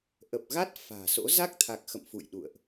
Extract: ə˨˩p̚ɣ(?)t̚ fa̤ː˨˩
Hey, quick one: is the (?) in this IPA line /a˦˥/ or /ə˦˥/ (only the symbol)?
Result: a˦˥